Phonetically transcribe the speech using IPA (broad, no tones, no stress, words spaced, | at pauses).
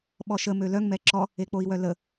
ɓɔʃə mølœŋ mɛǁɔ | ek͡poi̯wœlə